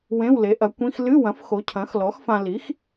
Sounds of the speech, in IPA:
wẽ˧˥˧wle˩˥ʔɐ˩˥ kʷĩ˧˥˧x lɨ˧˥˧wɐ̃˩˥f xo˩˥cʰɐ̃˩˥x lɔ˩˥xfã˧ li˩˥x

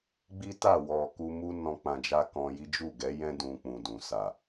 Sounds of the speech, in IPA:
ɡ͡bi˦ta˦˨wɔ˨ ku˧mu˦ nɔ̃˦ k͡pã˧d͡ʒa˦kɔ̃˧ji˦ d͡ʒu˦˨ɡɛ˨˦jɛ̃˦ dũ˧k͡pũ˨ dũ˨sa˨

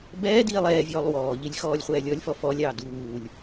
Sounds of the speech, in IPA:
bɛːdiːlˠ ɛːvʲɔːlˠ wɔːʎilʲ xɔːlʲχʷɛːlʲɔlʲfɔ fɔlʲɑː duːlʲ

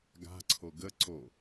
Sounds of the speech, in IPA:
ɡa̤ǀʰo ɡə ǀo

